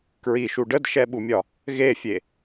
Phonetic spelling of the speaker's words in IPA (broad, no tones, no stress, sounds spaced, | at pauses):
k ɹ i ʃ u ɖ ə d ʃ ɛ ɓ u mʲ ɒ | ɣ e fʲ e